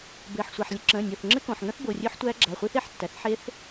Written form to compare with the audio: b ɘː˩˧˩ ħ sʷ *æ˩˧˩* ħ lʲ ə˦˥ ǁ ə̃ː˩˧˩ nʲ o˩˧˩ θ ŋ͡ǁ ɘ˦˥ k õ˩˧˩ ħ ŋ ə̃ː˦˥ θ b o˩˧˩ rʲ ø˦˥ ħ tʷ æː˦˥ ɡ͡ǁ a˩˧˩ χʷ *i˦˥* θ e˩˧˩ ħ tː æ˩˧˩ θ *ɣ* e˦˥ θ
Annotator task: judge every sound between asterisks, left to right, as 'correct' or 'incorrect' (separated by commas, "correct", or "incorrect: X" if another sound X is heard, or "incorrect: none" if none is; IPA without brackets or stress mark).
correct, correct, incorrect: ħ